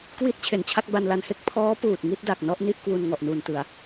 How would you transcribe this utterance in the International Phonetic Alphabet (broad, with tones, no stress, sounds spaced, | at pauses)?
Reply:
k w i˦˥ t̚ t͡ɕʰ e˨˩ n t͡ɕʰ a˥˩ k̚ b a˧ n l a˧ n h e˥˩ k̚ pʰ ɔː˦˥ p uː˨˩ t̚ ŋ i˥˩ t̚ d a˨˩ k̚ n ɔ˥˩ ʔ n i˥˩ ʔ k w u˧ n ŋ ɔ˨˩ ʔ n uː˨˩ n t ɯ˨˩ a̯